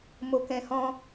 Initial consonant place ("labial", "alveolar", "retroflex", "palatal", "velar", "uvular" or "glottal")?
labial